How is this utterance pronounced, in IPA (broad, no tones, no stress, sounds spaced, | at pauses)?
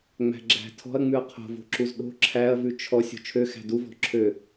ŋ͡m æ̤ ɡ͡ǁ æ̤ tʰ ɔ̤ ɐ̯ ŋ͡m ʉ ɐ̯ qʰ o̤ v o̤ ǁ u z ɗ o̤ ǁʰ æ ɐ̯ v ʉ t͡ʃʰ ɔ sʲ o̤ t͡ʃʰ ø x æ̤ d u v ɔ̤ ǁʰ ø